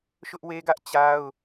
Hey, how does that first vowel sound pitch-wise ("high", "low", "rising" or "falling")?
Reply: high